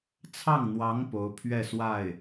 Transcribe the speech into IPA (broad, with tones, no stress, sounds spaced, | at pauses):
t͡sʰ ɑ˥˩ ŋ n̪ w ɑ˧˥ ŋ p o˧˥ ʊ̯ pʰ ɥ ɛ˥˧ s w a˥˩ ɪ̯